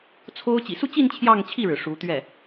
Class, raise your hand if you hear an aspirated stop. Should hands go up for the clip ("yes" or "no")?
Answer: yes